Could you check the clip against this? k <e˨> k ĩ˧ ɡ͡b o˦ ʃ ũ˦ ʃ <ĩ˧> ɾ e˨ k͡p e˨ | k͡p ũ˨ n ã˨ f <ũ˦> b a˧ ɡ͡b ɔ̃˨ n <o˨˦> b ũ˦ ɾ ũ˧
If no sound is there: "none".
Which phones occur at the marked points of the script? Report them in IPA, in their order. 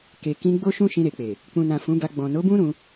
e˨, ĩ˧, ũ˨˦, o˨˦

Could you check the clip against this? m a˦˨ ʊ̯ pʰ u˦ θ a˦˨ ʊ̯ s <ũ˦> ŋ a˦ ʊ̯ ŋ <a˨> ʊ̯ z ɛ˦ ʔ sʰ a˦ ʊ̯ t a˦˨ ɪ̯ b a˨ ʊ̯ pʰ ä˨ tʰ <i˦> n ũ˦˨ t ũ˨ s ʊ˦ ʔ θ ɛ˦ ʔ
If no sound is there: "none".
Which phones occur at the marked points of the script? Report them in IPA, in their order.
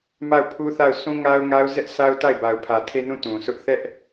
ũ˦, a˦, e˦

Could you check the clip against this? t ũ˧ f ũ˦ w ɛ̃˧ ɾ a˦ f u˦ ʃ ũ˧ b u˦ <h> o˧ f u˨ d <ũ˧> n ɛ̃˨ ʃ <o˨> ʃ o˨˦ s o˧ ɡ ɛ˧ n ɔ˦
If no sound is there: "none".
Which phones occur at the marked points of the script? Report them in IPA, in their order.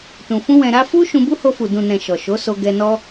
h, ũ˨, ɔ˨

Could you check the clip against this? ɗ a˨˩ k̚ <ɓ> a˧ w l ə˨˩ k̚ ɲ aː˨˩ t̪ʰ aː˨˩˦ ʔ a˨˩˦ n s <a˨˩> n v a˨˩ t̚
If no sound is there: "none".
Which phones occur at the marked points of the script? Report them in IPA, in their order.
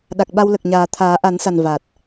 ɓ, a˨˩

